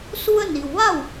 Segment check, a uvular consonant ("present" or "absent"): absent